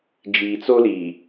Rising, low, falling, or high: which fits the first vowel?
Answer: low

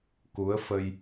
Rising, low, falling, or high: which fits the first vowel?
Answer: rising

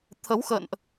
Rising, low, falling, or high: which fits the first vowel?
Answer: rising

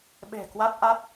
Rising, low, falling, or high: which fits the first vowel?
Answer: low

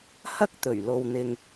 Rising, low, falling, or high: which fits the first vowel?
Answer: high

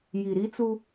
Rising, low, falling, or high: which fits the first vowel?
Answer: low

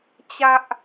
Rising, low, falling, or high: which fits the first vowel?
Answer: high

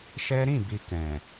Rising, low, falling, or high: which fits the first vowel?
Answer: high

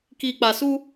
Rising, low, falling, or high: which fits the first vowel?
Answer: low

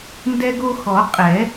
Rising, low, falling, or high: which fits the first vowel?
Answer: high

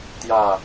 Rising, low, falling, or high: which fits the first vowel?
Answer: falling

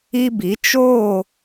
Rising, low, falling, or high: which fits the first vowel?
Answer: high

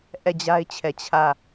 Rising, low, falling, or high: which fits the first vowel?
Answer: falling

